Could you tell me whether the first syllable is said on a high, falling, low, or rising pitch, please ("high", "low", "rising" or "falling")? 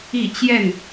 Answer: falling